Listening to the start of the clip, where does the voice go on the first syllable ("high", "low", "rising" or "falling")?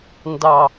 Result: low